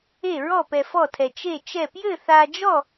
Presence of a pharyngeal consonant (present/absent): absent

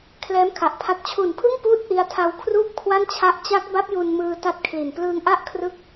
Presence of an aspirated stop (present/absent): present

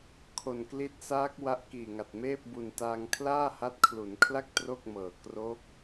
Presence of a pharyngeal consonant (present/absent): absent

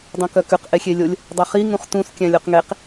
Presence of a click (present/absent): absent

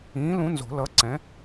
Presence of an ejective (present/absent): absent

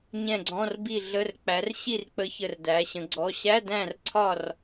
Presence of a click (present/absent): present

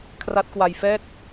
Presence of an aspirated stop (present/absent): present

